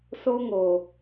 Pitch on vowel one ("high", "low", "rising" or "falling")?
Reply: high